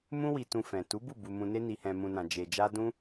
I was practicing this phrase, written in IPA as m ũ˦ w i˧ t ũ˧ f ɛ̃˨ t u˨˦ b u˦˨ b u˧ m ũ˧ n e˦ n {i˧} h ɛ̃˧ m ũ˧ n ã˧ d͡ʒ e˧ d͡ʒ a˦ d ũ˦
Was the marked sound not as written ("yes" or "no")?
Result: no